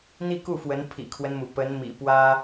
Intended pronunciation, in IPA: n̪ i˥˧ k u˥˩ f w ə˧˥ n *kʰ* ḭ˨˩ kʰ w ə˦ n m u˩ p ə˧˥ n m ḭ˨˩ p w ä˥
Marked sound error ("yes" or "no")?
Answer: yes